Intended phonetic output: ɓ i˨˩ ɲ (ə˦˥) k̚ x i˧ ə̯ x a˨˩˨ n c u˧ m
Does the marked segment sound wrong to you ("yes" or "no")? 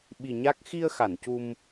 yes